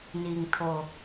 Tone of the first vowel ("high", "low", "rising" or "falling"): low